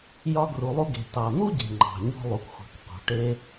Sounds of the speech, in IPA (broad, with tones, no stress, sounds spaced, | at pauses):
j ɒ˧ ɡ r u˩ lˠ u˧ ɡ e̤˩ t ɑ˩ n̪ u˥ ɟ e̤˩ ŋ͡ǃ ɑ̤˩ ɲ ɔ̤˧ lˠ u˩ k xʷ ɑ̤˩ k q ɔ̤˩ ʈ e˧